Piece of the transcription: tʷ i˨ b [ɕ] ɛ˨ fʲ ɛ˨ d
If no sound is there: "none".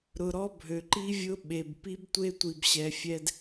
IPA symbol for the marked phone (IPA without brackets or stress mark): ɕ